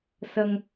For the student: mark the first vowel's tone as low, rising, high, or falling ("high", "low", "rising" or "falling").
low